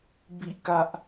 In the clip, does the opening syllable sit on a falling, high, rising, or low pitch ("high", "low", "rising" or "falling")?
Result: falling